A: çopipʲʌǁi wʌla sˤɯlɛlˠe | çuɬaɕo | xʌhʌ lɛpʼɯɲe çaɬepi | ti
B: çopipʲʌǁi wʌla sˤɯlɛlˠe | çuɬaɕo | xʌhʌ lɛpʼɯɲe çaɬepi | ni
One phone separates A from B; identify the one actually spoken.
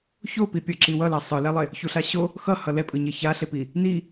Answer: B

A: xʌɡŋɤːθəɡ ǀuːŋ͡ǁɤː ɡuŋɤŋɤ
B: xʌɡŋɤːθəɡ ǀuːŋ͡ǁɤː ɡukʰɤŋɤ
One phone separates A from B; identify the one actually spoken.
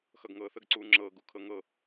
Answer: B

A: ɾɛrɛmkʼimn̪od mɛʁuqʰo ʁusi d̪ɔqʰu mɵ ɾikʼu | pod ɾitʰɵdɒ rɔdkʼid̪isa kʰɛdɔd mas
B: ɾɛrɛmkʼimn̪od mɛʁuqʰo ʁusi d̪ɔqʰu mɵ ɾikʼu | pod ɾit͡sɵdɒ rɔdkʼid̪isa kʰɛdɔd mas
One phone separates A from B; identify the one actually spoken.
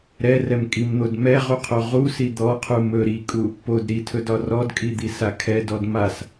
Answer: A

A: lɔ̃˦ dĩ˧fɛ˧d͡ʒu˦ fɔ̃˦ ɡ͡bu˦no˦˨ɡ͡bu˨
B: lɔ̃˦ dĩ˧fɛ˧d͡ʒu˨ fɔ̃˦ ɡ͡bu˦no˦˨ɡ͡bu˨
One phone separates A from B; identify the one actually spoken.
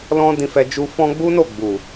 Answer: A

